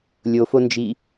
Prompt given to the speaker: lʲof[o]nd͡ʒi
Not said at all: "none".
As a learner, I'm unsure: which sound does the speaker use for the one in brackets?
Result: o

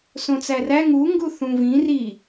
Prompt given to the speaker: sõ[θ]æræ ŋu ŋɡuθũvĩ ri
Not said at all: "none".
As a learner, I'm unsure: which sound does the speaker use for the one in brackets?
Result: t͡s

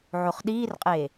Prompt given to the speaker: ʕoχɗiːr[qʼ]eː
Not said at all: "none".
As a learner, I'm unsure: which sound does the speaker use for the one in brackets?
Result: qʼ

